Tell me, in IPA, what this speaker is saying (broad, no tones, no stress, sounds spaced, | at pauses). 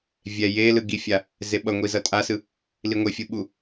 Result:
vʲ ɛ j e l ɯ ɡ i fʲ a | z e ɓ ʌ ŋʷ i z ʌ tʼ a s ɯ | l i ŋʷ e fʲ ɯ ɓ u